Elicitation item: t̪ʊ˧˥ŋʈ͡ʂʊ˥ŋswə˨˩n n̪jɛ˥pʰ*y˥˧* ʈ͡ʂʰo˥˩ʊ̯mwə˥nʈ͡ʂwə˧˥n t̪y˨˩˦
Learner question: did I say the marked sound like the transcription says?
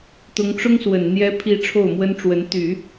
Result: no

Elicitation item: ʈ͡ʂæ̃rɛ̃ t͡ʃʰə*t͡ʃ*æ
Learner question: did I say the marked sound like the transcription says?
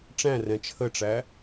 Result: no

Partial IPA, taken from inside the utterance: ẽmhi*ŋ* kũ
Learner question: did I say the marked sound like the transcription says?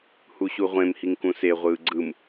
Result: yes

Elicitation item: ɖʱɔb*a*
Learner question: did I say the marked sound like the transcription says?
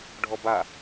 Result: yes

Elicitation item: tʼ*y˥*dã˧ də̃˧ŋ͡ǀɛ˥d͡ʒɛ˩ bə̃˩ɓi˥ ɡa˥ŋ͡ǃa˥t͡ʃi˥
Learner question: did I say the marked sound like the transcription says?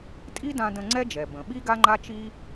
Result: no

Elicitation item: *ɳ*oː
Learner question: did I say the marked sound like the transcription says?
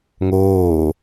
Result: no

